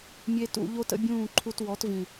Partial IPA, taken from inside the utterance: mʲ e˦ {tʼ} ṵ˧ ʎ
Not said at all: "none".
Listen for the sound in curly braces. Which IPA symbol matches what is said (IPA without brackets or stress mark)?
t